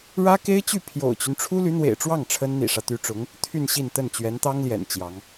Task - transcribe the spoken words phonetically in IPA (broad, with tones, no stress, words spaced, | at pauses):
ɻä˥ke˥ɪ̯t͡ɕy˥˩ pʰjo̰˨˩ʊ̯t͡ɕy˦n ʈ͡ʂʰu˥ly˧˥n̪wḛ˨˩ɪ̯ʈ͡ʂwɑ˥˩ŋ ʈ͡ʂʰə˥nn̪ḭ˨˩ʂä˦ t̪y˧˥ʈ͡ʂʊ˧˥ŋ | t̪ʰy˥˧nɕi˥˧n t̪ə˥˩nt͡ɕɥɛ˧˥nt̪ɑ˥ŋljɛ̰˨˩n t͡ɕjɑ˧˥ŋ